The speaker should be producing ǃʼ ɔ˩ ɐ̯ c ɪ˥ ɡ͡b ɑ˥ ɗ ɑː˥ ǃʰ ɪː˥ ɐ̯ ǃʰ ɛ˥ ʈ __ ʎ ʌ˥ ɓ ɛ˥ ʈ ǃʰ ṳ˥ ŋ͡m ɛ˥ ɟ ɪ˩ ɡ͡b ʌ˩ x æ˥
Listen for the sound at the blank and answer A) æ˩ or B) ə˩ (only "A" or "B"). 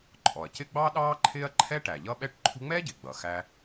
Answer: A